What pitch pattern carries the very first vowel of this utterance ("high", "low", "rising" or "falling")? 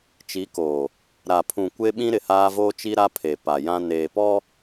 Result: rising